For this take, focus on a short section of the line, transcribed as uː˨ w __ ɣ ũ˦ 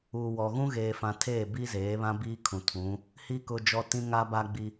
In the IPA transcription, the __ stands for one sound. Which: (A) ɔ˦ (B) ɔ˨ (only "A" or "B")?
B